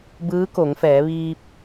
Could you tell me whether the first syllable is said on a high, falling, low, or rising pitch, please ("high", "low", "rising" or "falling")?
rising